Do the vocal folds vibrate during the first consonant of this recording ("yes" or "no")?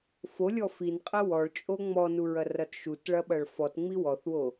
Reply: no